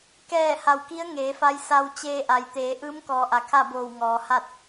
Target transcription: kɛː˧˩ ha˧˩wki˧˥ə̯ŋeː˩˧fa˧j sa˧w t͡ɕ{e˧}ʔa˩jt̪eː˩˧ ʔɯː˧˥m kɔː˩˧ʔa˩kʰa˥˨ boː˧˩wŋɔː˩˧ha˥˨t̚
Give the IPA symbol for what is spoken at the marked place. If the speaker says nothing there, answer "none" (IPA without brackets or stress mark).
eː˧